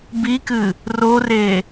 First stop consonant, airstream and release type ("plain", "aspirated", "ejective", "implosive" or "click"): plain